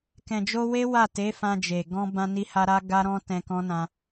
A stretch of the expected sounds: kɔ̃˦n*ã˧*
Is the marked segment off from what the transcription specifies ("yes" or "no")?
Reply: no